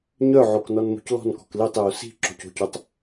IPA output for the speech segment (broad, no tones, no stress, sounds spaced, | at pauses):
ɲ œ ʕ o k n ɔ n m o̤ c l ɔ̤ n k ɔ̤ k l i tˤ j o s i̤ ǁ o̤ c o̤ c o tˤ